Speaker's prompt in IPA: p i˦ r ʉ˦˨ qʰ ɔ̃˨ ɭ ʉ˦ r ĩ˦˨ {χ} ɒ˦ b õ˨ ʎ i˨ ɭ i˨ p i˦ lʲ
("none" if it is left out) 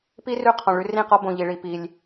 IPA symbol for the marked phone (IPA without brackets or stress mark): q